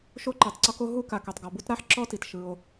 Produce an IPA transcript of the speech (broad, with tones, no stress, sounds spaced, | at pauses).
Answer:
ʃ o˥ ǃ e˩ tˤ ǀ ɔ˥ k o˥ ɦ u˥ k a˩ k ɛ˩ tˤ ɡ ɔ˩ b u˥ t ɾ a˥ ħ ǁ ɔ˥ t i˩ t ʃ ɯ˩ o̯